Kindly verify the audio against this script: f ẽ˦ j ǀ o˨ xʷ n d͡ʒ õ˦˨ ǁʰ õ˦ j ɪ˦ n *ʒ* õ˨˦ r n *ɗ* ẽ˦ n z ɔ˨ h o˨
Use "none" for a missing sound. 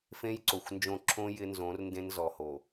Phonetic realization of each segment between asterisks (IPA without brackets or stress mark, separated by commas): z, d